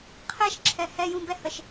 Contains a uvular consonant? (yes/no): yes